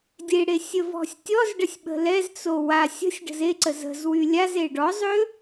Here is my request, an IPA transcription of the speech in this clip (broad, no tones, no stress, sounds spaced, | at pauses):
dʲ e ɽ e sʲ ə v ɔ̤ sʲ tʲ ɔ z ɖ ə sʲ ɓ ə̤ l ɛ z t͡s o w a sʲ ə̤ sʲ ɖ ə̤ z e ǀ ə z ə̤ z w y lʲ a z e ɖ ɔ zˤ ø